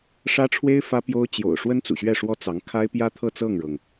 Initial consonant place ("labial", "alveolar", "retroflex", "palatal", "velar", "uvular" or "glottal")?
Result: retroflex